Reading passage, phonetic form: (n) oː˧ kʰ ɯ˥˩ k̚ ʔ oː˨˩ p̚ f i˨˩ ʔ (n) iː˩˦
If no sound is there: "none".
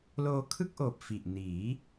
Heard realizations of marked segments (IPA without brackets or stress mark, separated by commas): l, n